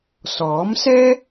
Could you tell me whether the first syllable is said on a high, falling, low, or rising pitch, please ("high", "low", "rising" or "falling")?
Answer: rising